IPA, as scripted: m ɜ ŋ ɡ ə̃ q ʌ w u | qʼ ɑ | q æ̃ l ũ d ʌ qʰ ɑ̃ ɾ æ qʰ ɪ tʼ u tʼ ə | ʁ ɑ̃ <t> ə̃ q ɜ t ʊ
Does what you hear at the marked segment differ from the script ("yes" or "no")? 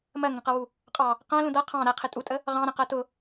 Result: yes